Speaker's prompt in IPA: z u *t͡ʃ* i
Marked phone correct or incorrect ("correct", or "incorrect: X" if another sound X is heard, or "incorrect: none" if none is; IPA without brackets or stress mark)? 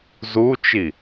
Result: correct